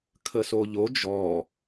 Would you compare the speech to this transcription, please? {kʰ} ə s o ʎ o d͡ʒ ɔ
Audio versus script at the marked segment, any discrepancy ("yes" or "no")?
no